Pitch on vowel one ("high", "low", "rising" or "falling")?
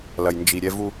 low